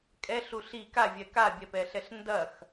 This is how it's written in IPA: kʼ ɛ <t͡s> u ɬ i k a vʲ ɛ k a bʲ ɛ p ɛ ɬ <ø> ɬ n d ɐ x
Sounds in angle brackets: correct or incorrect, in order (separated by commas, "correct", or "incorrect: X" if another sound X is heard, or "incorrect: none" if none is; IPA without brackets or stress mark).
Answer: incorrect: ɬ, incorrect: ɛ